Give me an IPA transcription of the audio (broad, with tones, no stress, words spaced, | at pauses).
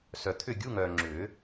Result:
sœ˨t̪ʰʏ˥˨ ɡʲu˧˥˧ŋœː˨ŋ͡ǁʏː˨˩˦